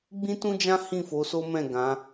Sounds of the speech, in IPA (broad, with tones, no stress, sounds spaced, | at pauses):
ɡ͡b ĩ˦ t ũ˦ d͡ʒ ã˦ h ĩ˦˨ f o˨˦ s o˦ m ɛ̃˦˨ ɡ ã˨˦